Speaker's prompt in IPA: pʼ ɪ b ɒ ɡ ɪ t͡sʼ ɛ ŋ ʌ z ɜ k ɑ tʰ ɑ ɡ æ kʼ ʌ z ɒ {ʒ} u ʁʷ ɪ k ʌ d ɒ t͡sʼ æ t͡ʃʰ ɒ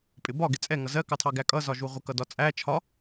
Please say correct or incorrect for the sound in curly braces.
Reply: correct